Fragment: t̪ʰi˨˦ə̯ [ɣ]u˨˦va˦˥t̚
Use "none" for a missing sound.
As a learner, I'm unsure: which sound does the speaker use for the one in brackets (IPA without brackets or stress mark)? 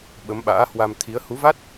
h